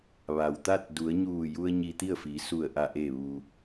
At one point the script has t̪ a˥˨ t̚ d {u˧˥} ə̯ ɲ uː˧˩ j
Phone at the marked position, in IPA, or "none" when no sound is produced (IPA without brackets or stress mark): u˩˧